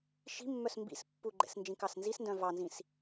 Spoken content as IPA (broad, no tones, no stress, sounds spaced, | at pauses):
ʃ i̤ mː œ s m b ḭ s pː u ɡ͡ǃ ɛ̰ s n d͡ʒ ĩ k ɑ s n z i s n d œ̃ v ɑ n z ĩ s